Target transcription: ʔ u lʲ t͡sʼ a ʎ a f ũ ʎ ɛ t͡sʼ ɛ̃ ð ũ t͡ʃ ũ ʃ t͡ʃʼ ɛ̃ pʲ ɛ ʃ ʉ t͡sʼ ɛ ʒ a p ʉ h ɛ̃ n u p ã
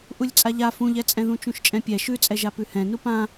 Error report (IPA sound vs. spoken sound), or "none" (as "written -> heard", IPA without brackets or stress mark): none